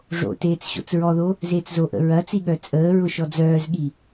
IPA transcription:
ʐ o̰ t eː t͡s ɕ o̰ t͡s ɹ ɔ ð o | z eː t͡s z o ʔ ə̰ ɹ ɐ t͡s i ɠ œ t͡sʼ əː ɹ ʊ ʃ ɔ d͡z œː z ɠ i

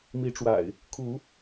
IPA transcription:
m i˨˦ ʈ͡ʂ w a̰˨˩ ɪ̯ | kʰ u˨˦

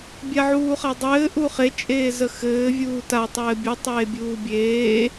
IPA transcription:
bʲ a ʕ uː χ a dˤ ɘː ʔ u χ e t͡ʃʼ eː z ə x ɘː vʲ uː t a tˤ ɘː bʲ u tˤ eː bʲ uː bʲ eː

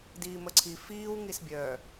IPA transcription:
d iː m ə ǀʰ i f iː w ŋ i s bʲ œ

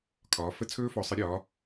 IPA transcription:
kʰ ɒː˨˦ f ə˦˥ t͡sʰ ɵː˦˥ f ɔ˨˦ sˤ ɨ˨˦ ɾʲ ɒː˨˦

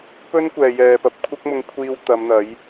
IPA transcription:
p ɵ˥ n kʷ ɛː˨ j ɛː˨ p ɐ˨ p̚ kʷʰ ɐ˥ k̚ m ʊ˧ ŋ kʷʰ iː˧ w t̪ ɐ˨˧ m n̪ ɐ˨˥ j

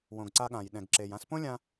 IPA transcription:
w õ˩ ɡ ǀ a˧ ɠ ã˩ j ɗ ɛ̃˩ ɡ ǁ e˩ j ã˧ s p õ˥ lʲ ã˧

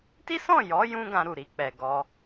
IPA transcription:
t i˦ s ɔ̃˦˨ j ɔ˨˦ j ũ˦ ɡ ã˧ ɾ u˨ ɾ i˨ k͡p ɛ˨ ɡ ɔ˧

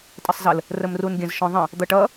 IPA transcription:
tʼ ɘ sˤ z ə l | r ə m r u n ɡʲ ə̃ z ʃ ɔ̃ ðˤ ə̃ | d̪ ʌ ʈ ʌ

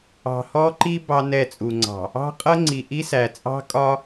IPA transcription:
ɑ̤˨ h ɔ˦ ǃ i˦ b ɑ˦ n ɛ˦˨ t͡sʼ u˨ ŋ͡ǀ ɑ̤˨ | ɑ̤˦ qʼ ʌ˦ ŋ͡ǀ i˨ ʔ i˦ s æ˨ t͡sʼ ɑ̤˦ kʼ ɒ˦

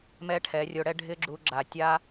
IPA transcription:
m ɛ˦ ʈʰ ɛ˨˦ rʲ o˧ ɽ ɛ˦ ɖʱ ɪ˦ ɡ͡ǁ u˧ ɡ͡ǁ a˨ tʲ a˦

